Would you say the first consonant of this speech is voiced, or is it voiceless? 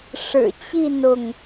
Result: voiceless